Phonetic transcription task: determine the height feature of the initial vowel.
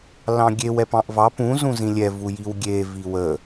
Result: low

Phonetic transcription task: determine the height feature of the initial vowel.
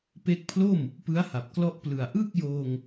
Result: mid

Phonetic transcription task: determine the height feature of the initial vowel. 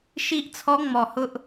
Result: high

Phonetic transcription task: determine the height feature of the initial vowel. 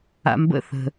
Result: low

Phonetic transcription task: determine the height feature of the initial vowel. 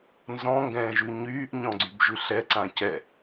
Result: mid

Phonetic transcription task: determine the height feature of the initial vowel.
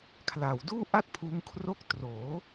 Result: low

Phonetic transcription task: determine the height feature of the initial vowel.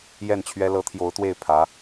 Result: mid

